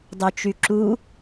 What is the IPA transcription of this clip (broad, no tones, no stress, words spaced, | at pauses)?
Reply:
dˤøt͡ʃyǁu